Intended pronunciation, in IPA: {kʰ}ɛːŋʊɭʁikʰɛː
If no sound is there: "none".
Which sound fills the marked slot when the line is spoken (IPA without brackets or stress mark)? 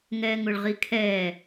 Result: ŋ